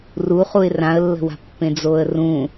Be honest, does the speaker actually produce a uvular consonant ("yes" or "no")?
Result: yes